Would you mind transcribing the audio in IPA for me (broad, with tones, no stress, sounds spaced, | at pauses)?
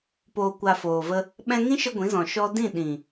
p oː˨ kʷ a˨ f oː˨ v ə˧ | ɓ ɛ̃˧ ŋ ĩ˦ ʃ ə˧ ɡʷ ĩ˨˦ z ɔ̃˨ ʃ ɔ˧ d ĩ˦˨ ɗ ĩ˨